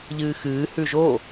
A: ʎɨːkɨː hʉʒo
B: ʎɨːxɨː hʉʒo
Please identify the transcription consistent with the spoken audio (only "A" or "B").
B